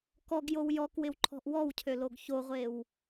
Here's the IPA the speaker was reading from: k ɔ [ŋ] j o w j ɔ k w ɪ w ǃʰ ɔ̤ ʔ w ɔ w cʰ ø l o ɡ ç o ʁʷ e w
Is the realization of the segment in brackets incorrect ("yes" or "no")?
yes